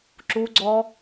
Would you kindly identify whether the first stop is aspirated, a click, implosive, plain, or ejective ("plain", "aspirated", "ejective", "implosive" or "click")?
click